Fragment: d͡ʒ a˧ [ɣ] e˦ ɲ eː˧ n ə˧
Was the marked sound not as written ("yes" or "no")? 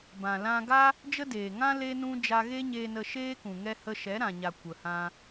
no